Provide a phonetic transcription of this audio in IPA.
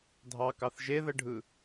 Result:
dʱ ɑ k ɑ θ ʒ e ð ə ɖʱ ɯ

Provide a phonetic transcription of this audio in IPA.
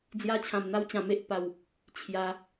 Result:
d͡z j a˧ t͡ɕʰ ã˨˩ m n̪ a˧ w t͡ɕ ã˨˩ m e˨ ʔ p a˨˩ w | t͡ɕʰ j a˧

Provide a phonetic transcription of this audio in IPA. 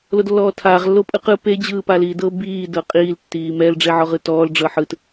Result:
l o d lː ɔː tʰ aː ʁ lː o pʼ ɯ q ɯ p e d͡ʑ ɯː p a l iː d ɤ b iː d ɤ qʼ iː l tː iː m ɛ l ɖ͡ʐ e ʕ ɔ ʁ ɯ t ɔː l ɖ͡ʐ ɤ ħ ɯ t

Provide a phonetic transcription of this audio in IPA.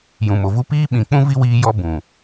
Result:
j ũ˨ m o˨ v u˦ p iː˦ ɓ ĩ˨ k͡p ũ˦ v i˦ w iː˧ j ɔ˧ b ũ˨

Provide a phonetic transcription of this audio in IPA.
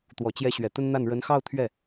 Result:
t̪ w ɔ˨˩ t͡ɕ j ɛ˧˥ ɕ ɥ ɛ˨˩ t̪ ə˥ n n̪ a˥˩ n ɻ ə˧˥ n x ɑ˥˧ ʊ̯ t̪ʰ ɥ ɛ˥˩

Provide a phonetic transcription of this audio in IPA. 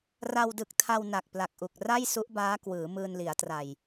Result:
r a˧ w d ɯ˨˩ k̚ tʰ a˧ w n a˨˩ k̚ p l a˨˩ k̚ ʔ u˨˩ k̚ r a˥˩ j s u˦˥ ʔ b aː˦˥ k w ɯː˩˦ m ɯː˧ n l i˩˦ a̯ t r a˨˩ j

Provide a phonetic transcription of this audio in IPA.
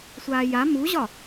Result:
sʷ aː j a m u ʑ ɒ

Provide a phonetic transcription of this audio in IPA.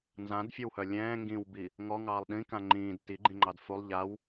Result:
n z ã d fʲ ə w h œ lʲ ɛ̃ː ŋ ɡ ĩ w b i | ŋ ɔ ŋ ɑː lˠ ɗ ĩ k ã ŋ͡ǃ ĩː d t i ɡ͡ǃ ĩ ŋ͡ǃ ɑ d f u lˠ ʎ a w

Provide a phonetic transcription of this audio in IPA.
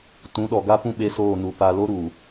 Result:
t ũ˨˦ ɗ ɔ˨ ɡ a˦ p ũ˦ ɓ e˦ s oː˦˨ n u˨ p a˨ l o˦ ɾ uː˨

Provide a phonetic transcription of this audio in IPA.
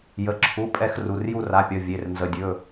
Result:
j ə˩˧˩ ǁʰ u˩˧˩ pʼ ɛ˦˨ x r u˩˧˩ r j u˦˨ r a˩˧˩ pʲ ʌ˩˧˩ vʲ e˩˧˩ r n z ə˩˧˩ dʲ ɵ˩˧˩

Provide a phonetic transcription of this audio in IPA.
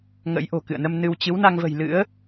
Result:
ŋ ə̰˧˥ j ʔ o̤˨˩ k ɨ̰˧˨ ə̯ n ə˧ m n ɨ˧ w t͡ɕ ɨ˨˦ w n a˧ ŋ v ə̤˨˩ j l ɨ̰˧˥ ə̯

